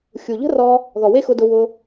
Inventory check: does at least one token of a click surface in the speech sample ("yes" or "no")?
no